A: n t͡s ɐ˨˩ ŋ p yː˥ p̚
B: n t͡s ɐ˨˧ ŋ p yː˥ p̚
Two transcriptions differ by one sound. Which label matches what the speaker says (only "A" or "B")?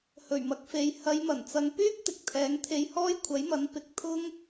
B